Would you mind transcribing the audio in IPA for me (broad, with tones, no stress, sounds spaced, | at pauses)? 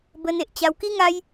b ə˧ n e˨ ʔ t͡ɕ a˧ w k i˦ ŋ a˦ j